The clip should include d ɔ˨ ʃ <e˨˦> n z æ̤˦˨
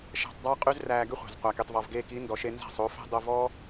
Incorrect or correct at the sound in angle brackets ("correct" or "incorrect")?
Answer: incorrect